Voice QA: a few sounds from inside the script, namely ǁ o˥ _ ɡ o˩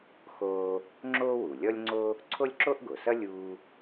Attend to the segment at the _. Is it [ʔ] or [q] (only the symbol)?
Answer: ʔ